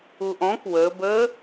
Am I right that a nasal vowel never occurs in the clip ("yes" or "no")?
no